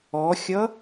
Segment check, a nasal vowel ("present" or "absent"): absent